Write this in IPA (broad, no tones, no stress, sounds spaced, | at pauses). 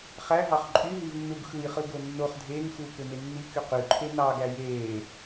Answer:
χ æ ɦ ɑ χ ǃʼ y ɦ i v nː u ɡ x ɯ j χ ɯ ɡ o nː o χ dʱ eː ŋ x uː k ø m e nː i k y q y ǃʰ e n ɑ ɡ æ j eː